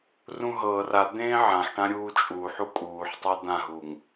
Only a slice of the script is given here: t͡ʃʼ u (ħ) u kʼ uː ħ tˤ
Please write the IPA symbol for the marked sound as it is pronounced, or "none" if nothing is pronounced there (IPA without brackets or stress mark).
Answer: ħ